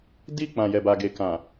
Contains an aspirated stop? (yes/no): no